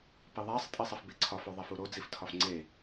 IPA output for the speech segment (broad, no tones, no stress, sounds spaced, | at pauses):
p i ðˤ æ sˤ tʼ i sˤ e f b e ǀʰ ɒ f o ðˤ æ f u ɾ o d͡z i f tʰ ɒ f ŋ͡ǀ e